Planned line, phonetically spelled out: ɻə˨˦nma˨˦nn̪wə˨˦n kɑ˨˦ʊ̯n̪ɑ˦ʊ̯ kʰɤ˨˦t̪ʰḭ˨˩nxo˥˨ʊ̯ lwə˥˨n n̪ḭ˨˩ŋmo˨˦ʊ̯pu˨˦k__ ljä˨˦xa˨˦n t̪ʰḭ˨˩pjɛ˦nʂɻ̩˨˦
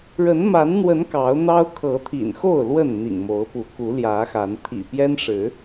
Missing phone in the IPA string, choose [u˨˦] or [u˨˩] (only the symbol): u˨˦